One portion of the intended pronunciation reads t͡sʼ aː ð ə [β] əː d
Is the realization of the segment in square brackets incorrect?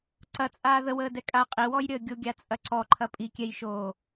yes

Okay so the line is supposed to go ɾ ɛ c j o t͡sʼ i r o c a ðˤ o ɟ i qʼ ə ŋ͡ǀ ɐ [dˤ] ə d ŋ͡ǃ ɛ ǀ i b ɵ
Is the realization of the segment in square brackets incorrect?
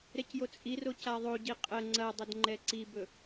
no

